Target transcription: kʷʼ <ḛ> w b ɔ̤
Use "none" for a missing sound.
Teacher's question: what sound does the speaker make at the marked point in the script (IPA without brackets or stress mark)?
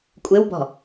e